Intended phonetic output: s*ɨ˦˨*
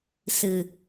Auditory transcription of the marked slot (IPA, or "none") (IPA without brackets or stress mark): ɨ˨